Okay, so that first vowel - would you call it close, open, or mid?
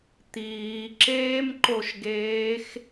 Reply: close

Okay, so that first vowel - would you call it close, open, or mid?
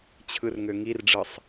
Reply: close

